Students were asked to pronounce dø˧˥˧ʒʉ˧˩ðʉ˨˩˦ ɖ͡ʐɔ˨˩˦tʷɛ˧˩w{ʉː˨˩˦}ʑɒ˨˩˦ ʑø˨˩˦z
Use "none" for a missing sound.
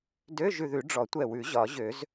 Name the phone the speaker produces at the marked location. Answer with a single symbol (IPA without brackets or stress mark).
ʉ˨˩˦